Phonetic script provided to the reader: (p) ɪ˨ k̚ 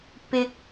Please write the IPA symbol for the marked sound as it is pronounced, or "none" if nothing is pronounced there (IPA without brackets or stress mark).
p